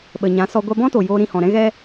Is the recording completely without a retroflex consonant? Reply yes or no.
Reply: yes